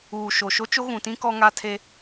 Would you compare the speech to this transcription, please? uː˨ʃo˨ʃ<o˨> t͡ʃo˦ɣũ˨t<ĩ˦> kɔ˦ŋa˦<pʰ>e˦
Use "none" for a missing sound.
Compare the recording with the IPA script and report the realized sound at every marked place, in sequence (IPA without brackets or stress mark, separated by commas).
o˦, ĩ˦, tʰ